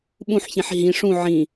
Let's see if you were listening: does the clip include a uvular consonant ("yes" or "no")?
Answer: no